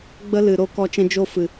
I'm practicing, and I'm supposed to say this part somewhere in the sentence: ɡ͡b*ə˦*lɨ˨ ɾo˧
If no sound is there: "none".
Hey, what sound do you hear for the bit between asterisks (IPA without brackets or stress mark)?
ə˦